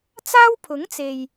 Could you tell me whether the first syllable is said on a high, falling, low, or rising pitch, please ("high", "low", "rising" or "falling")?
high